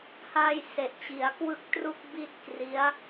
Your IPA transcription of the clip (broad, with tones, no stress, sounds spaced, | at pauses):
h a˧ j s e˨˩ ʔ t͡ɕ i˩˦ a̯ k w ɯ˥˩ k̚ t r u˥˩ k̚ b i˥˩ t̚ k r i˦˥ a̯